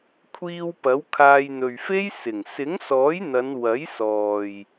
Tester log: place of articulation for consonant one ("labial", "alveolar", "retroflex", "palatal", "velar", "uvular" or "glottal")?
velar